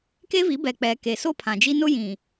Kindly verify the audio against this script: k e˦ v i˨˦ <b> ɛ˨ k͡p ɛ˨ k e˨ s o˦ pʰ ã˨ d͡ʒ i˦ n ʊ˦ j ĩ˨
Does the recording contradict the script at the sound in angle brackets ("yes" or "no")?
no